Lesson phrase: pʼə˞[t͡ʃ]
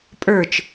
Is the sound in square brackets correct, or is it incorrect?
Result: correct